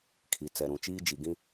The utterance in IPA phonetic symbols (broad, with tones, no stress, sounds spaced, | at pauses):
kʰ i˨ t͡s ɛ˨ ɾ ũ˨ t͡ʃ iː˦ d͡ʒ i˨ ɡ ĩ˦